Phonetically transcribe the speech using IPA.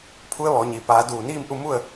pʰ u˧˥ ə̯ ʋ ɔː˩˧ ɲ i˩ p aː˩˧ d uː˧˩ n iː˥˨ m ʔ u˥˨ m u˥˨ ə̯

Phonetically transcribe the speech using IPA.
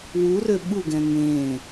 w u r ø ɓ u ɡ ɛ̃ ŋ ẽ

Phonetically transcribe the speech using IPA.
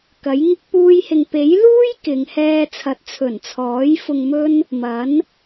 k ɐ˨˥ j ŋ ɪ˥ k̚ p uː˥ j h ɪ˧ ŋ p e˨˥ j l uː˥ j k ɪ˨ ŋ h ɛː˧ t͡sʰ ɐ˨ t̚ t͡sʰ ɵ˨˩ n t͡sʰ ɔː˨˥ j f ʊ˧ ŋ m ɵ˥ n | m ɐ˨˥ n

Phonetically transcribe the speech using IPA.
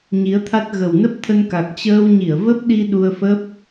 ɲ i˨˦ ə̯ t̪ʰ a˦˥ t̚ ɣ ə˨˩ w n ə˦˥ p̚ t̪ʰ ə˧ n k a˨˩ k̚ t͡ɕ əː˧ w ɲ i˧˩ ə̯ v ə˦˥ p̚ ɗ i˧ ɗ u˧ ə̯ f ə˦˥ p̚

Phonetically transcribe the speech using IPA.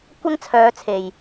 kʷ ɐ˥ ŋ t͡sʰ œː˨˧ t͡sʰ e˨˩ j

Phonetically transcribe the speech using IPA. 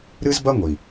ɾ ɨ˦ z b ɐ˦ ŋʷ i˨

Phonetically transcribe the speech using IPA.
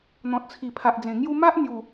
n̪ ɔ̃˨ t̚ t͡sʰ i˨˩ pʰ a˨ ʔ d͡z ẽ˨˩ ŋ j u˥˧ m a˦ ʔ n̪ j u˨˩

